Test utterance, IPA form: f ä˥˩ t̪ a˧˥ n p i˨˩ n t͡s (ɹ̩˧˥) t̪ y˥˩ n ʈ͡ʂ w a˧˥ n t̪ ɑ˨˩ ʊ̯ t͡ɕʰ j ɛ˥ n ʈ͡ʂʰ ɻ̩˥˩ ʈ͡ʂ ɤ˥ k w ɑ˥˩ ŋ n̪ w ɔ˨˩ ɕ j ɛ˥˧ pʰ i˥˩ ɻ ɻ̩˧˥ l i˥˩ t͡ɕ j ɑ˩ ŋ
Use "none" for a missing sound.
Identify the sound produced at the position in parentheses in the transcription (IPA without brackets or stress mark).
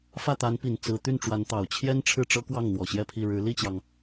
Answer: ɹ̩˧˥